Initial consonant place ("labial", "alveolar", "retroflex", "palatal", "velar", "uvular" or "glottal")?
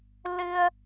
alveolar